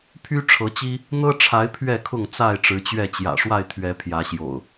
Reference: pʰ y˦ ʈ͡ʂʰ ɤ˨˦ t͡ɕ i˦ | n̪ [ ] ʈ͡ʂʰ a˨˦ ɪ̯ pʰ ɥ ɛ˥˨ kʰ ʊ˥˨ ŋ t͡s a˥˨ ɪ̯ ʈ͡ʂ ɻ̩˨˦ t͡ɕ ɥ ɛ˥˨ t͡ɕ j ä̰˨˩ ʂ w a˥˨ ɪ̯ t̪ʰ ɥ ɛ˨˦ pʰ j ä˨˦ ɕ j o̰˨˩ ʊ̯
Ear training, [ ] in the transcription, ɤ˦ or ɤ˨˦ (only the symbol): ɤ˦